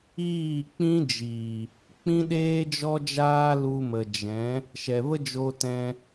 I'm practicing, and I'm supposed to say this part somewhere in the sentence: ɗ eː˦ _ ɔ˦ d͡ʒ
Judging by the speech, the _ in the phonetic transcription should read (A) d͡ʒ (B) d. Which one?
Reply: A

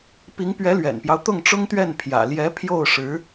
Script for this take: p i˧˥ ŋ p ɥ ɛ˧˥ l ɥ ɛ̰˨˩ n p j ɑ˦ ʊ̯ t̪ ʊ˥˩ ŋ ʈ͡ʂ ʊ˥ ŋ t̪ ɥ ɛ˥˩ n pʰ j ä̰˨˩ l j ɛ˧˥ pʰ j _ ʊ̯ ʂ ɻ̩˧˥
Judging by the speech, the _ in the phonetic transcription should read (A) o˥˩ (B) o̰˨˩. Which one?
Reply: A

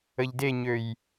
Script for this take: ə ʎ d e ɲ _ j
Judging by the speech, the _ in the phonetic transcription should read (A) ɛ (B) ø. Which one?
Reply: B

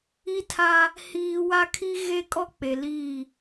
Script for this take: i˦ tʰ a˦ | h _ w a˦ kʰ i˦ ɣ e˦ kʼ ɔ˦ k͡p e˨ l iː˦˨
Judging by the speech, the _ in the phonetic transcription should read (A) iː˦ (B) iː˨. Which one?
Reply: A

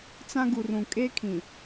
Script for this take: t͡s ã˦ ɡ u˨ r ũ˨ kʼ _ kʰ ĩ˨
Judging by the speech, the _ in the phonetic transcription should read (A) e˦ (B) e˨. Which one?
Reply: A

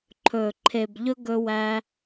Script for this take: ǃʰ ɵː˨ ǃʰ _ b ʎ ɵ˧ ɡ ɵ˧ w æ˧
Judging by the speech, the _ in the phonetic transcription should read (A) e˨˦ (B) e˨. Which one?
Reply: B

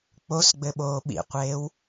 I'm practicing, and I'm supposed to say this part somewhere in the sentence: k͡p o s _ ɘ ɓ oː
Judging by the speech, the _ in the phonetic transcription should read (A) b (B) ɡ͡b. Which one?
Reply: B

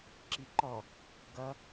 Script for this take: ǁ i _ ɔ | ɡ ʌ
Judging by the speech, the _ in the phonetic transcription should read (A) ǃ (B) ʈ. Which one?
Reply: A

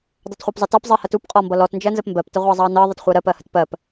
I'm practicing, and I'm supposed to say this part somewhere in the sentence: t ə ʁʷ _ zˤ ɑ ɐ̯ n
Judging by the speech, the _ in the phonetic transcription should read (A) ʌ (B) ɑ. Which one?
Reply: B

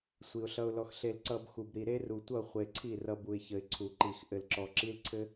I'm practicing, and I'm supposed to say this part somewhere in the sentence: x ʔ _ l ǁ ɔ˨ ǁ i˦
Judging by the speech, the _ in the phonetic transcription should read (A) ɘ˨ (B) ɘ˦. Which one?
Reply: A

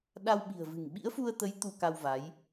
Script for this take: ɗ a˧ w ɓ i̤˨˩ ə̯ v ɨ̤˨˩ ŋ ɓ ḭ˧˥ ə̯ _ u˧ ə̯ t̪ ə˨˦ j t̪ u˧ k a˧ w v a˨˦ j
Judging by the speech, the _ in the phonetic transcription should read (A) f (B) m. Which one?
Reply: A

